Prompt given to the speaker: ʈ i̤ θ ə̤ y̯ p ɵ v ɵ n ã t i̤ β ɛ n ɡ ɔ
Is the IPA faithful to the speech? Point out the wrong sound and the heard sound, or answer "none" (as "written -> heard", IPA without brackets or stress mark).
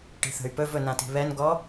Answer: none